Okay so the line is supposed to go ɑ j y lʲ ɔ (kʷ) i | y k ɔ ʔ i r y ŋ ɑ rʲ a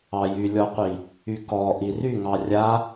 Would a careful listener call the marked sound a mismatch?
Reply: yes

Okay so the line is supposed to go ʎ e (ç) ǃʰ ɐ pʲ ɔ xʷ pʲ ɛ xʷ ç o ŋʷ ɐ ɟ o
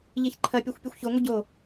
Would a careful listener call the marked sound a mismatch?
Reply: no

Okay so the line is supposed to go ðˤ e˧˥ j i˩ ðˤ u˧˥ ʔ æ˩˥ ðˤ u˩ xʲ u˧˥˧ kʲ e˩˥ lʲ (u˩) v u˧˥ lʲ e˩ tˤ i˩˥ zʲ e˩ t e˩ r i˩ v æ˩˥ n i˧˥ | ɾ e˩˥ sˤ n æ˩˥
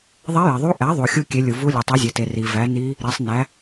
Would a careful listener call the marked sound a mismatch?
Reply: no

